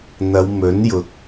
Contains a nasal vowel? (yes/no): no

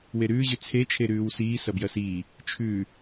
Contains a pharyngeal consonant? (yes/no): no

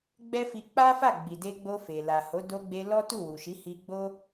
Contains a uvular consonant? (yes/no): no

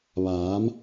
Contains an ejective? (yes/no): no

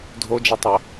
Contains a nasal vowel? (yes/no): no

